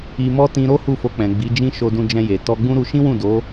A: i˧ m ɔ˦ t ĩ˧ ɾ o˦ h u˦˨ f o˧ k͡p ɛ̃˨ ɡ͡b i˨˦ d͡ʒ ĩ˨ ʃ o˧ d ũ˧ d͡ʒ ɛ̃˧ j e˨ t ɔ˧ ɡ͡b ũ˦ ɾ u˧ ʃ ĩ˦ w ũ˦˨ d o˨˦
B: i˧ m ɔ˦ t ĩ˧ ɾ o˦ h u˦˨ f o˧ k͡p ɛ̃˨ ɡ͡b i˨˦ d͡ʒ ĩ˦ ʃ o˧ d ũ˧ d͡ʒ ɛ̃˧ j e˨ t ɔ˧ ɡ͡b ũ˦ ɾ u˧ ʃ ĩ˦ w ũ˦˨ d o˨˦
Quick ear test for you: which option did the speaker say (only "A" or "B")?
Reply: B